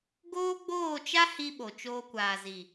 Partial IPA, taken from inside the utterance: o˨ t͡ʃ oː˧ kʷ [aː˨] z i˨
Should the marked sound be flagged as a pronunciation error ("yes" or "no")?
no